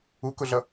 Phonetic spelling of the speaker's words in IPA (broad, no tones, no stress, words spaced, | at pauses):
ukʊɮʌ